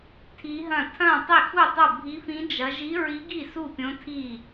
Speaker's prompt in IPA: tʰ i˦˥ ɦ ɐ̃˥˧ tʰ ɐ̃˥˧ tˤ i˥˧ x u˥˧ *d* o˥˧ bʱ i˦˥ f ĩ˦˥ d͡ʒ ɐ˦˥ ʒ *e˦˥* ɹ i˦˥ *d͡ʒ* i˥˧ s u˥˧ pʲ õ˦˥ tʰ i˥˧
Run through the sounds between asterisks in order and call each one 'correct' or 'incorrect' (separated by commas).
incorrect, incorrect, incorrect